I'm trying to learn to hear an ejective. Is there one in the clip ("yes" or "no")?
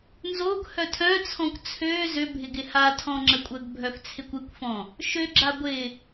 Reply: yes